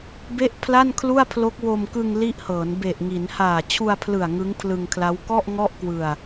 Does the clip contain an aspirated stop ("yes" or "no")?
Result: yes